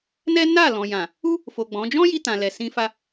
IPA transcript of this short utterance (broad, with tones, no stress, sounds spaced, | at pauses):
n ɛ˦ n a˦˨ l ɔ̃˨ j ã˨ | u˦ | f o˨ ɡ͡b ɔ̃˨˦ d͡ʒ ɔ̃˦ j i˧ t ã˨ l ɛ˨ s ĩ˧ f a˦